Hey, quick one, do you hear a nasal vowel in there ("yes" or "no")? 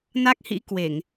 no